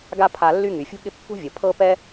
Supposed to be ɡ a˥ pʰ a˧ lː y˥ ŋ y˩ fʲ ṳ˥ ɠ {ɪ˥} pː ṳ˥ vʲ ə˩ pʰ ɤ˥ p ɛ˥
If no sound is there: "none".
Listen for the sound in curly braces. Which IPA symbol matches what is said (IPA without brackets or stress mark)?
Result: ɪ˥